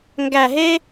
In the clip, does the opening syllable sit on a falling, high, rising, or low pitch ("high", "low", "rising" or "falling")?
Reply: low